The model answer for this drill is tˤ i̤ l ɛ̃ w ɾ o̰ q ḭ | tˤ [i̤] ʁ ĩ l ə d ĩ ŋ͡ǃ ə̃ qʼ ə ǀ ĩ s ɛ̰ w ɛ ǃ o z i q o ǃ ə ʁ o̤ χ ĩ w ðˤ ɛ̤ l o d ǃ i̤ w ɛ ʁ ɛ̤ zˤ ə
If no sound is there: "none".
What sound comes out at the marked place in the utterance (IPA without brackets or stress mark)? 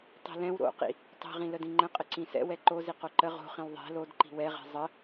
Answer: i̤